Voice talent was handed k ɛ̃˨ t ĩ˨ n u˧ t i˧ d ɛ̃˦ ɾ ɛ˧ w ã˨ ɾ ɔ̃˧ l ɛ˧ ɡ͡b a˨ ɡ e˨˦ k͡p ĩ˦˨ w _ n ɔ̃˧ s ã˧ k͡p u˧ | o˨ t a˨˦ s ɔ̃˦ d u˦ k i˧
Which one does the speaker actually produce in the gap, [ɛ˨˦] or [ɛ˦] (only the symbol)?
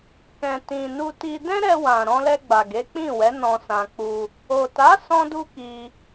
ɛ˨˦